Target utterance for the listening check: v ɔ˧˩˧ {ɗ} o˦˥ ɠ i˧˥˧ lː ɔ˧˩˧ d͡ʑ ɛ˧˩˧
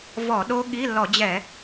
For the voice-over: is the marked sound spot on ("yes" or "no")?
yes